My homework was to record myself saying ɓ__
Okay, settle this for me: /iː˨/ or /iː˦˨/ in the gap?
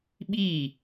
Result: iː˦˨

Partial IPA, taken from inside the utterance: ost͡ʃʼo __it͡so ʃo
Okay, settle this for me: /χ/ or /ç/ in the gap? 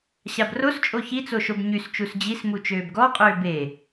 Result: ç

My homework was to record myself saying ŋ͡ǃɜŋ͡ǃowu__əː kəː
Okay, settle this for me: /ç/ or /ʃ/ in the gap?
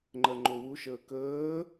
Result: ʃ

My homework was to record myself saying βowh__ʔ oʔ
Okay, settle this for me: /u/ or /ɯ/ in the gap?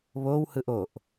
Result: ɯ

